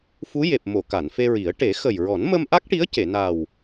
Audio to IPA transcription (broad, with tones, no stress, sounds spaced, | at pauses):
f u˧˥ j e˨˩ p̚ m o˨˩˨ k a˨˩˨ n f e˧ ɹ i˨˩˦ ə̯ ʈ e˨˩˦ x ə˨˩ j ɹ ɔ˨˩˦ n m ə˧ m ʔ a˦˥ k̚ ʈ i˧˥ ə̯ c e˨˩˨ n a˨˩ w